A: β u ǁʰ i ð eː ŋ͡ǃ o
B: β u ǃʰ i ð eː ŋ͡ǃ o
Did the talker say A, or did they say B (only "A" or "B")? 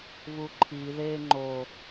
B